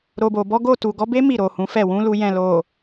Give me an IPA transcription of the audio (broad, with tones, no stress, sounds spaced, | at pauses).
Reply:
ɾ o˨ b o˨ b ɔ˨˦ ɡ o˦˨ t u˨ ɡ ɔ˨˦ b e˦ m i˦˨ ɾ o˨ h ũ˨˦ f ɛ˦˨ w ũ˨˦ l u˧ j ɛ̃˨ l o˨